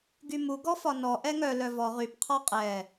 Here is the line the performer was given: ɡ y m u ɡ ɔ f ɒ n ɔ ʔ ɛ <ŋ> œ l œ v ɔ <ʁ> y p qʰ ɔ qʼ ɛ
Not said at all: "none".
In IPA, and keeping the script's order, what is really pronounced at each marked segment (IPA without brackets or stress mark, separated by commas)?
ŋ, ʁ